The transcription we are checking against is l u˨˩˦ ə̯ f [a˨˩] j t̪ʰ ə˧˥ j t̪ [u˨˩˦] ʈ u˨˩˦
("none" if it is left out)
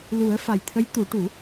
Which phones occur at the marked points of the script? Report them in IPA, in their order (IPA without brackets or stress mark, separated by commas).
a˨˩, u˨˩˦